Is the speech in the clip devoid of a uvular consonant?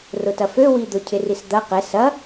no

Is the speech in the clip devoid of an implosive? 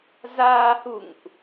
yes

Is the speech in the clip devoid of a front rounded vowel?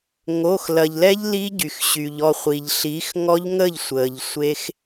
no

